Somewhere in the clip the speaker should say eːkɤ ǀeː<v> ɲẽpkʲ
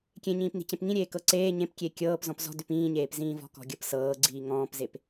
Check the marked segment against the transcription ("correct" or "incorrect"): incorrect